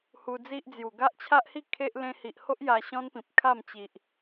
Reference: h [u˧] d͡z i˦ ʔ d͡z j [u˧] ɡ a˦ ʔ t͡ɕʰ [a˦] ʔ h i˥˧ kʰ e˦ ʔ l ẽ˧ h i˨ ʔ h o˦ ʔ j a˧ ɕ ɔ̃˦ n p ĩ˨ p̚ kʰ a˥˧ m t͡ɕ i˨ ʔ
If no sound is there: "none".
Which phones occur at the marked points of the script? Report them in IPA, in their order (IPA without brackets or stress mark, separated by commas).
u˧, u˨˩, a˦